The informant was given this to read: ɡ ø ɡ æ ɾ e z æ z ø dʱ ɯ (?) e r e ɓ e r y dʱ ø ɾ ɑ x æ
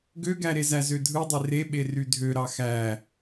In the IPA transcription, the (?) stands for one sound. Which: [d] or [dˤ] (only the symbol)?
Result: dˤ